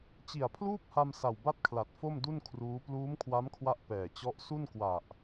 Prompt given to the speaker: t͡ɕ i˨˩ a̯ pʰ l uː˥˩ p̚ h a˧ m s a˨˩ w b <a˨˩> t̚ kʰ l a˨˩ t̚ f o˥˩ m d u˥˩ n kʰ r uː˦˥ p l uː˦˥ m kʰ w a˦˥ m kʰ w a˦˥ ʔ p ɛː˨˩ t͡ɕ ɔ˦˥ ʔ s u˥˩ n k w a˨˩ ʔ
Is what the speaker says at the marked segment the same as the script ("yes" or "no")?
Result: no